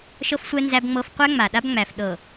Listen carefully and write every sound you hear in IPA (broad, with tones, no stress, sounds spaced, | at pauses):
ʃ ɤ˦ f sʷ ɛ˦ n z æ˦ b ŋ͡m ɤ˦ f qʷ æ˦ ŋ͡m a˨ ɗ a˦ b ŋ͡m æ˨ f ɗ ɤ˨